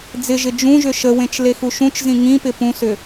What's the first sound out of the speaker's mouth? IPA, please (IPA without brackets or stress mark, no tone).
d͡z